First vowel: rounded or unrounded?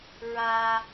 unrounded